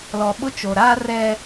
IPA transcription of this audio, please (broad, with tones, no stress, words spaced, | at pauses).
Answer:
lɔ˨ɓʊ˦t͡ʃo˨ ɾaː˦ rɛ˦